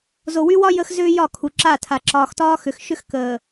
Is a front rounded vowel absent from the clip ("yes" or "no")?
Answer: no